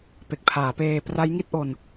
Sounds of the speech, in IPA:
pe˨˩k̚pʰaː˩˦peː˧ pra˦˥jŋi˥˩t̚ʔo˧n

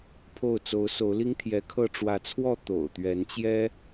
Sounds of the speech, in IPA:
pʰo˥˨ʊ̯ t͡so˨˦ʊ̯ so˨˦ʊ̯li˦ŋt̪ʰjɛ˨˦kʰɤ˥˨ ʈ͡ʂwä˨˦t͡sʰwɔ˥˨ t̪o̰˨˩ʊ̯t̪ɥɛ˨˦nt͡ɕjɛ˦

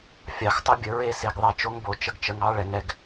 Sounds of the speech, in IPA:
fʲɑ˧xtˤə˦bʲə˨˦ ɹe˦se˧ɡðˤɛ˦˨t͡ʃo˦ŋ bo˧t͡ʃə˧ɡt͡ʃə˧ŋɑ˦ ɭɛ˧ŋɛ˦ɡ

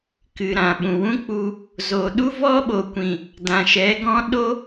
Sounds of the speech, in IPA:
kɨ˨ɾã˨ɓũ˨wũ˦ k͡pu˧ | zo˨ ɗu˦vɔ˦ɓo˨kʷĩ˨ | dã˨ʃɛ˨˦ɡɔ̃˦ ɗo˦

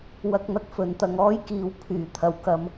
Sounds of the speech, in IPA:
wɐ˧k̚n̪ɐ˨k̚ fɵ˨˥nt̪ɐ˧ŋ ɔː˥jkiː˨˧w pʰyː˨˩ t̪ʰɐ˨˩wkɐ˨m

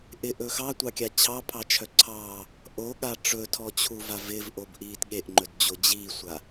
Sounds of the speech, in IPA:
ʔɪʔɵ xɑtʷɑkʲa t͡ɕʰɑpʰɑt͡ʃʰœ ǀʰɑː | ʔoɠa ʈ͡ʂɵtʰɔt͡ɕʰuva vɪvʔobʔiːt ɠeʔŋ͡ǃɵdd͡ʑo d͡ʑiːsʷa

